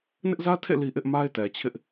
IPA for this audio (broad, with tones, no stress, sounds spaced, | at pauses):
n ɪ˦ ʔ z ä˦ tʰ ḛ˦˨ l i˦ ʔ ɪ˦ ʔ m a˦ ɪ̯ t ɛ˨ t͡ɕʰ ɪ˦ ʔ